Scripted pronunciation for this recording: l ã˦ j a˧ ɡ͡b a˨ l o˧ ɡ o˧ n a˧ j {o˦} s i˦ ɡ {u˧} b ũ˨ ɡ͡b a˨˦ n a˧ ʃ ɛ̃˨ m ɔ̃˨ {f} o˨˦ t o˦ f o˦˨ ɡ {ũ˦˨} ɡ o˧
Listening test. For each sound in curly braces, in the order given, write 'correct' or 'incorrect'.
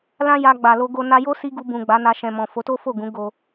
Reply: correct, correct, correct, incorrect: ũ˨˦

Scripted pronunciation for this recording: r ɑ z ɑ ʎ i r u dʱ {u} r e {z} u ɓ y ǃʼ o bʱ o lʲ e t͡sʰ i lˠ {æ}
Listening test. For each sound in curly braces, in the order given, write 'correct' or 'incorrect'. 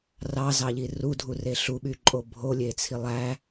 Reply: correct, incorrect: ɬ, correct

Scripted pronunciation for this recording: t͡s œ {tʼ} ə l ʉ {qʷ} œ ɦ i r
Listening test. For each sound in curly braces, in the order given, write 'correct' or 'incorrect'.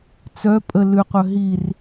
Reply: incorrect: pʼ, correct

